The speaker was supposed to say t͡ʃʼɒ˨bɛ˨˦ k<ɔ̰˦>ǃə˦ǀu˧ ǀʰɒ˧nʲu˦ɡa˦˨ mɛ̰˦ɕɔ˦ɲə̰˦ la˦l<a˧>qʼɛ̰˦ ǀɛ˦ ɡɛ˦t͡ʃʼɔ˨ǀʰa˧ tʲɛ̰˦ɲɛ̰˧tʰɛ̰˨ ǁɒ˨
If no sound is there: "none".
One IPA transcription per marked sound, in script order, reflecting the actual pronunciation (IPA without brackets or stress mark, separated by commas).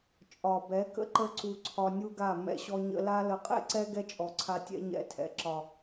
ə̰˦, ə˧